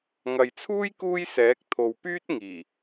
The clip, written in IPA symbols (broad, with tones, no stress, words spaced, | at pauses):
ŋɐ˨jt͡sʰuː˥j kuː˥jsɛː˨˥k̚ t̪ʰo˨wpyː˥t̚ ŋiː˨˩